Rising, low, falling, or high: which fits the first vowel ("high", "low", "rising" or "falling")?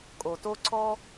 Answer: low